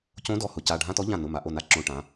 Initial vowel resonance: nasal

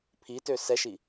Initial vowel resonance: oral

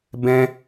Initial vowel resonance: nasal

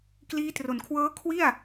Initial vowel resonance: oral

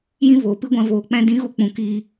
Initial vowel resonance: nasal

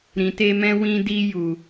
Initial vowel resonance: nasal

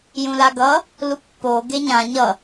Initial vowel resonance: nasal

